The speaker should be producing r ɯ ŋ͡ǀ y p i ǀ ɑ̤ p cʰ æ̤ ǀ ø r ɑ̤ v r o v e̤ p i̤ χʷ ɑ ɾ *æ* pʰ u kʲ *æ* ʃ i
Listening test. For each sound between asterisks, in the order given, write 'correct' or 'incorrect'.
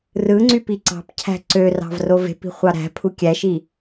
incorrect: æ̤, correct

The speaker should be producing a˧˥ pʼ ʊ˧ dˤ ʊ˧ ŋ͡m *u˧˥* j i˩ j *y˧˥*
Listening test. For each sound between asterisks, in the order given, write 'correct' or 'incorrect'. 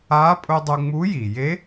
correct, incorrect: e˧˥

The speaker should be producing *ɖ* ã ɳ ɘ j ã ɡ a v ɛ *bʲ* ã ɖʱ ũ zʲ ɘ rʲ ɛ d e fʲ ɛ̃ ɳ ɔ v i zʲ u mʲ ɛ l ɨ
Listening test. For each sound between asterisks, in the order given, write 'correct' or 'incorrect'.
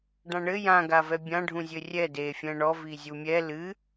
correct, correct

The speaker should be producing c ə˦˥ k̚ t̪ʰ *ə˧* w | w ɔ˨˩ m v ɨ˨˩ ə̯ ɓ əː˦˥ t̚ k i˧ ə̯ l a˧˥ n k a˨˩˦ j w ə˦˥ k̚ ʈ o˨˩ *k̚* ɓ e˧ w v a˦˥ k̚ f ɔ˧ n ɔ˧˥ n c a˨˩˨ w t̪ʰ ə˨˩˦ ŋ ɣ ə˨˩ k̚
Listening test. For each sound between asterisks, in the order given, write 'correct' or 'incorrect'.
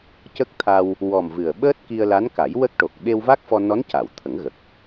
incorrect: a˧, correct

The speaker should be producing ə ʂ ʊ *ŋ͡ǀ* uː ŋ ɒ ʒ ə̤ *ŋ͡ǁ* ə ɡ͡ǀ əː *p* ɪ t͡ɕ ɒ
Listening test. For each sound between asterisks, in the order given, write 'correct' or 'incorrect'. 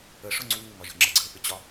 correct, correct, correct

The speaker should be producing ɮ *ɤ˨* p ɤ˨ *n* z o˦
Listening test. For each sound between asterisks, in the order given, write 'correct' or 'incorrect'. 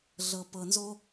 correct, correct

